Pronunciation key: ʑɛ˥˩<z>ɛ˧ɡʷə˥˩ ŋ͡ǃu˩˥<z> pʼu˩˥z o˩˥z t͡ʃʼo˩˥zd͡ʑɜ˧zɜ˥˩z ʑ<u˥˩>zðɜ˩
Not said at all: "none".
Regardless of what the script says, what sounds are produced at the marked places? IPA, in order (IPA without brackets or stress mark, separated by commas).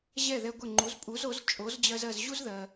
ð, z, u˥